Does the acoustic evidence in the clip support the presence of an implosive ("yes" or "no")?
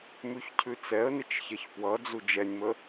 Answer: no